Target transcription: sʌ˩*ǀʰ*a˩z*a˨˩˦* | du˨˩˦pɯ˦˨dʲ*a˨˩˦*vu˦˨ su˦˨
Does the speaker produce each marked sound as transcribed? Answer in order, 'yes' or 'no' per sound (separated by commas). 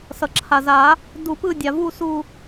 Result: no, yes, no